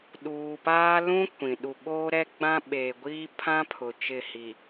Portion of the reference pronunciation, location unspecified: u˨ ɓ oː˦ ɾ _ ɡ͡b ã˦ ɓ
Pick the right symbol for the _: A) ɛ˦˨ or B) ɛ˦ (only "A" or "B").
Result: B